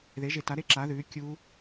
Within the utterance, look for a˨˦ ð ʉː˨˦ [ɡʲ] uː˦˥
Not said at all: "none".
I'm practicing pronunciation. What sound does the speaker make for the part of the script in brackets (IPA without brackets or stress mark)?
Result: kʲ